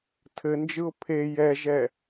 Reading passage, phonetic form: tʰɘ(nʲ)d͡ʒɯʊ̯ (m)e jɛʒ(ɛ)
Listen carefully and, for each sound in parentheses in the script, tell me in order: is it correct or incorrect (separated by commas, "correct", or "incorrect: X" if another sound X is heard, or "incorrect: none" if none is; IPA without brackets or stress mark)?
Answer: incorrect: n, incorrect: pʰ, correct